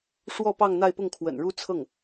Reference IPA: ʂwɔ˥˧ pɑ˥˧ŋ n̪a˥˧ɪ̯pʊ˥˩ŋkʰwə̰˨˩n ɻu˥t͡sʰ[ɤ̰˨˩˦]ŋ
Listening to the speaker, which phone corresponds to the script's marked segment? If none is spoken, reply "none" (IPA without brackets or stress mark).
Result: ɤ˥˩